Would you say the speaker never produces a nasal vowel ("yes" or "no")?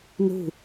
yes